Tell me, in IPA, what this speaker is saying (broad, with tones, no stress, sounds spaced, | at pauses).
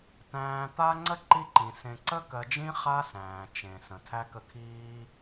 t æ̃ː˨ t̪ a˦ ŋ͡ǀ ə˥ ǃ i˦ ǃ ĩ˩ s ẽ˨ ǀ ə˥ k ɜ˨ d͡ʒ ĩ˥ χ a˥ s æ̃ː˩ t͡ʃ ẽ˩ s ə̃˩ tʰ æ˥ k ə˦ kʰ iː˥